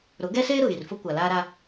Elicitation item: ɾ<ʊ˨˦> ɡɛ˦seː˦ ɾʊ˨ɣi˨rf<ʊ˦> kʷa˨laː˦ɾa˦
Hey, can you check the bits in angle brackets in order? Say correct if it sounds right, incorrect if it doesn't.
correct, correct

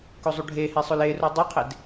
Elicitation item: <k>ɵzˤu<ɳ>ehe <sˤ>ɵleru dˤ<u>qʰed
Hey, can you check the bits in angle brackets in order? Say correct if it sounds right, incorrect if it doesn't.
correct, incorrect: ɖʱ, correct, incorrect: o

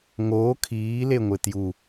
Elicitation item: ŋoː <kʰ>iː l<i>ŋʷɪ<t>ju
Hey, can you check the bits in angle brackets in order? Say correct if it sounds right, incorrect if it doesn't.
correct, incorrect: e, correct

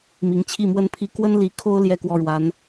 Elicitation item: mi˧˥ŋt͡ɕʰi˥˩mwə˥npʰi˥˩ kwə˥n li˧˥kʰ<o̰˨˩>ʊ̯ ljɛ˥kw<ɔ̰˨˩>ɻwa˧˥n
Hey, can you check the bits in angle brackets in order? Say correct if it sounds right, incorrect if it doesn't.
incorrect: o˥, incorrect: ɔ˥˩

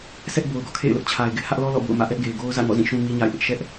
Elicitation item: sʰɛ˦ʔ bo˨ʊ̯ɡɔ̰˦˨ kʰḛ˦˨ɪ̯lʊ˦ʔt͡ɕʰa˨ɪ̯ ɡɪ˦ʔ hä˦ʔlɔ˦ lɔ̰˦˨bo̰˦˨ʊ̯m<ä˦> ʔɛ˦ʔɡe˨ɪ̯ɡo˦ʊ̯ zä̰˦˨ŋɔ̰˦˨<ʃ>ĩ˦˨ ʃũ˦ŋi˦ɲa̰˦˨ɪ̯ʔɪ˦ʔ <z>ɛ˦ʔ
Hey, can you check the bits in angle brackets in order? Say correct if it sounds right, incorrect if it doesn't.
incorrect: ä̰˦˨, incorrect: z, incorrect: ʃ

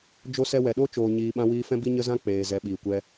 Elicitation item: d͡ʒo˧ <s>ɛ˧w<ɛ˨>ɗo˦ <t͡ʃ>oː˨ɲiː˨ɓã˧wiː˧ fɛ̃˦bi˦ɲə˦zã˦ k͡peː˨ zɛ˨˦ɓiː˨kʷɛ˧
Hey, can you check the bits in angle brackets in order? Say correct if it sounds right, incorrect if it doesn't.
correct, correct, correct

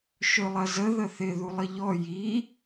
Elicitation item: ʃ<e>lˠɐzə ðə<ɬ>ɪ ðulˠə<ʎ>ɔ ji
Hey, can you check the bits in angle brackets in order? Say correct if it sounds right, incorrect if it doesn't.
incorrect: ø, incorrect: θ, correct

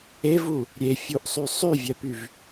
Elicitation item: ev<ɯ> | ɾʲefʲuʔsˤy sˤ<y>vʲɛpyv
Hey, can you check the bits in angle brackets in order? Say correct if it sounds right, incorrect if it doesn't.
incorrect: u, correct

